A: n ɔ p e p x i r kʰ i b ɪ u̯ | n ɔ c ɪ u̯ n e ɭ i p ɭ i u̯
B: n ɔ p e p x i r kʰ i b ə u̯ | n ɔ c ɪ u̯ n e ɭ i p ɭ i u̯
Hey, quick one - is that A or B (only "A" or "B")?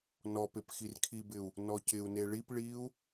A